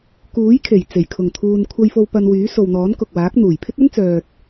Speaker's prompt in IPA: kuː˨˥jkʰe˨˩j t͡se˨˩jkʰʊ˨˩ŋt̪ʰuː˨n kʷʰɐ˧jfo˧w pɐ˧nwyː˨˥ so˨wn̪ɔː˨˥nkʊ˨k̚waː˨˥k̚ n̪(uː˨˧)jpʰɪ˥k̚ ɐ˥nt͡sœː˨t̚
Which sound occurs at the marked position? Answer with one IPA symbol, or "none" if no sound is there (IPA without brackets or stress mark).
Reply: uː˨˩